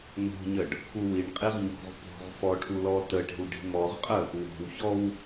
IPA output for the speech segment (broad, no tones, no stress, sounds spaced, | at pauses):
n o̤ ɲ ə ɖ | k u w i ɳ qʼ i ʁ ɲ o̤ ʁ p o̤ ʁ f ɔ ʈʰ u l ɔ t ə ʈ i̤ w ɖ i̤ m ɔ ʁ qʼ ə | w o̤ w ç ɔ w